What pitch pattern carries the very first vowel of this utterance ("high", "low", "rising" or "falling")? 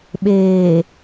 low